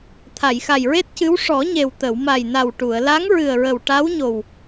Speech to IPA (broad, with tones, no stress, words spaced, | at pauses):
t̪ʰa˨˩˨jxa˨˩jɹe˦˥t̚cɨ˧˥w ʂɔ˨˩˦ɲe˨˩w t̪ə˨˩˨w ma˨˩jna˨˩w ʈu˨˩˨ə̯ la˧˥ŋɹɨ˨˩ə̯ɹə˨˩w ʈa˧˥wɲo˨˩w